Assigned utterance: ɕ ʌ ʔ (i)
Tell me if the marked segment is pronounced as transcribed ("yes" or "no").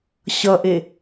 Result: no